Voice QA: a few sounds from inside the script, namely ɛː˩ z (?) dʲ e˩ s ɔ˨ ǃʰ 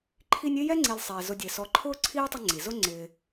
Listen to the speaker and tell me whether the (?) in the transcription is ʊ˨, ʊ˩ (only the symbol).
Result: ʊ˨